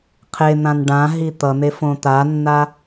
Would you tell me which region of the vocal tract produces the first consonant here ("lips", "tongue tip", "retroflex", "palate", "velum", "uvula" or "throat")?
uvula